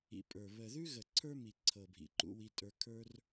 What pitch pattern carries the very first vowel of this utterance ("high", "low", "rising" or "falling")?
low